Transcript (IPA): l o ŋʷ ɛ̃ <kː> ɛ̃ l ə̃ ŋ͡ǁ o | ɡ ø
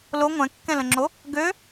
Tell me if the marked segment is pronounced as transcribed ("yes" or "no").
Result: yes